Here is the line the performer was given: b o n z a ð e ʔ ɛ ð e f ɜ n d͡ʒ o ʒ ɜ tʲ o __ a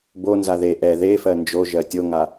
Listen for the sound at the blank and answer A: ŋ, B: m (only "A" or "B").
A